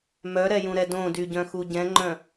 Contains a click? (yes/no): yes